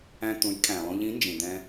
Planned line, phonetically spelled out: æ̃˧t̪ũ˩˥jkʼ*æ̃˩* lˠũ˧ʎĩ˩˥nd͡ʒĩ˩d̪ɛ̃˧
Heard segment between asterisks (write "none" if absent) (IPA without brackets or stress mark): æ̃˩